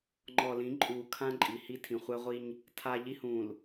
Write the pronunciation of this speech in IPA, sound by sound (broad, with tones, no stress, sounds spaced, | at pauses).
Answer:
ŋ͡ǃ ɔ˨ l ĩ˨˦ ǃʼ uː˨ kʰ ã˦ ǃʼ i˨ h i˦ tʰ ĩ˨ χʷ ɛ˦ ʁʷ i˦ ɲ | tʰ a˦ ʎ i˦ h ũː˨ l